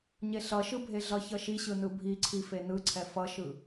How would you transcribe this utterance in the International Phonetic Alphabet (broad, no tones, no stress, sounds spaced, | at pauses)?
ɲ e ɬ ʌ ʃ ɯ bʱ e ɮ ʌ ç ʌ ʃ i ɕ ɯ n ɯ bʱ i ǀʰ i f e n ɯ ǀʰ ɛ f ʌ ʃ ɯ